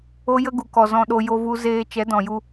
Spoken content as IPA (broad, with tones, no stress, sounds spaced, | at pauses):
o˦ j ə˦ ɡ u˨ k ɔ˨ z ɔ̃˧ ɗ o˧ j o˧ v u˧ z eː˧ t͡ʃ ɛ˨˦ d ɔ̃˨ j u˧